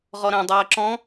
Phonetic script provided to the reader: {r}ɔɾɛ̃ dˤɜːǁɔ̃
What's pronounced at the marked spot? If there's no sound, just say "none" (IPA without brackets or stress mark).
ʁ